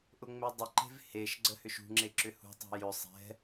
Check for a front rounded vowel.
present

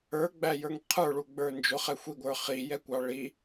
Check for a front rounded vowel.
absent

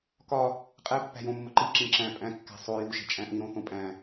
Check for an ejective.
present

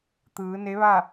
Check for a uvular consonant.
absent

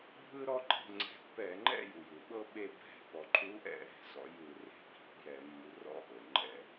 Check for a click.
present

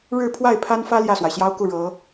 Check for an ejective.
absent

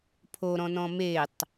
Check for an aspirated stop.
present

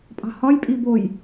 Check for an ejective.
present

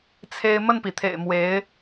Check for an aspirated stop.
present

